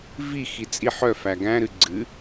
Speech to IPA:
v i x i t͡sʼ i ħ œ f æ ɡ æ̃ ɾ ɨ ɡ͡ǀ ɨ

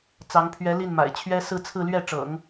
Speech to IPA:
t͡s ɑ˧˥ ŋ pʰ ɥ ɛ˧˥ l i˥˩ n m a̰˨˩ ɪ̯ t͡ɕʰ ɥ ɛ˥ s ɹ̩˥˧ t͡sʰ ɹ̩˥˧ l ɥ ɛ˥˩ ʈ͡ʂ ɤ̰˨˩˦ ŋ

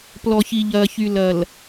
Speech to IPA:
p l ɔ˨ ç i˨ ʎ ɐː˨ ç y˨ l ɐ˨ l

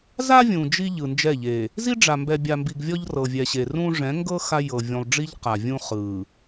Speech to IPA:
z a˦ vʲ ũ˨ d͡ʒ i˦ ʎ ɯ˨ n d͡ʒ ɛ˦˨ ʎ e˨ | z i˦ ɖ͡ʐ a˨ m b ɛ˨ bʲ a˨ m b i˨ ɡ vʲ ɔ˦ ʎ r ɤ˨ vʲ ɛ˨ ɕ e˨ r ũ˦ ʐ ɛ̃˨˦ ŋ ɡ ɤ˦ x a˦ j ɤ˨ vʲ ũ˨ lˠ ɖ͡ʐ i˦ ʎ q a˨ vʲ ũ˦ χ ɯ˨

